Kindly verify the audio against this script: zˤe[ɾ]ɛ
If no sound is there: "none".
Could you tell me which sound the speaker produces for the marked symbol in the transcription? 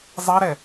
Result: ɾ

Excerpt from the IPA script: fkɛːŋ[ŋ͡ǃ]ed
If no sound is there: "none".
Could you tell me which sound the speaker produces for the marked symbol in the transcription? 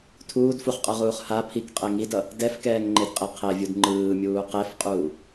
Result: ŋ͡ǃ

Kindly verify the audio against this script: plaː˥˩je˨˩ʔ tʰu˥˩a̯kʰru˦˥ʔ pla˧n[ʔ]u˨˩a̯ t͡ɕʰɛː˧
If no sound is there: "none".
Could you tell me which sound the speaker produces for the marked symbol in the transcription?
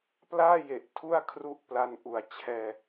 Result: ʔ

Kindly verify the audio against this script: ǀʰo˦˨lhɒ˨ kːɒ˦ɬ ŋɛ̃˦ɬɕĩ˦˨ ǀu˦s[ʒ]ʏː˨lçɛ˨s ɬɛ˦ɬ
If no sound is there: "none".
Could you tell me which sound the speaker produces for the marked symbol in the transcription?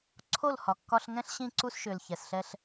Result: ʃ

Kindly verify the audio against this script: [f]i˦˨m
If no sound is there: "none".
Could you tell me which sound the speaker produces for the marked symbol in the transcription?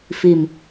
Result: f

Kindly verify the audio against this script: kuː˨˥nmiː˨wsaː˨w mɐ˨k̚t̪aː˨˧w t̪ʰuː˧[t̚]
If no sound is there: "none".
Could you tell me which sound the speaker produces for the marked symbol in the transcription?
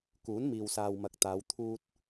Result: t̚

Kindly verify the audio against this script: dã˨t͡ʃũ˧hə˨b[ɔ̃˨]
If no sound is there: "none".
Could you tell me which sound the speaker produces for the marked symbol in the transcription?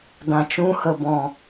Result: ɔ̃˨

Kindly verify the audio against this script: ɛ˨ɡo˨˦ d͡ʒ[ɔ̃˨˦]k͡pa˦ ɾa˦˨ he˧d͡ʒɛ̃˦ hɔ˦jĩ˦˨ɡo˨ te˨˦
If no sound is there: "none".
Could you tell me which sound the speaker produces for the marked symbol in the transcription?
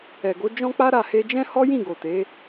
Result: ɔ̃˦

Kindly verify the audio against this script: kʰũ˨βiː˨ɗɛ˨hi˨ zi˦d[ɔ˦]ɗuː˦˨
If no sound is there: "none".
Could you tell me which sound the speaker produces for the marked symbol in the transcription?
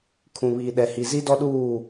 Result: ɔ˦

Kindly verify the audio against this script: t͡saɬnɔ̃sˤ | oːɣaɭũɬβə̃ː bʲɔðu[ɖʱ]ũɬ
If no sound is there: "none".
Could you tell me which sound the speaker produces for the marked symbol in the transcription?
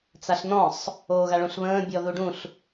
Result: ɖ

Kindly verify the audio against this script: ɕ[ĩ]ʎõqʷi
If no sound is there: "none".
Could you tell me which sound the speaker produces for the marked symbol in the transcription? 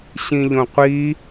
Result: ĩ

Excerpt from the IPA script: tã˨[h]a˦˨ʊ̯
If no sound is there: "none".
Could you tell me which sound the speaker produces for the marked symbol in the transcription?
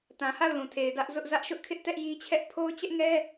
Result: h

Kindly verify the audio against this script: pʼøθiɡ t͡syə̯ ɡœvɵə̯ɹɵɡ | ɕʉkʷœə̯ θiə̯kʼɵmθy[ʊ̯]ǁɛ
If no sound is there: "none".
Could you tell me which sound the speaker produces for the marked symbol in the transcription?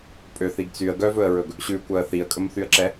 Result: ə̯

